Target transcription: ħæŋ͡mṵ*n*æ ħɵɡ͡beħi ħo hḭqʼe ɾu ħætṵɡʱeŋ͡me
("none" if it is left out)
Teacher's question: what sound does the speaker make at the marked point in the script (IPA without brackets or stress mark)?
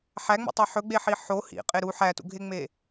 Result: tˤ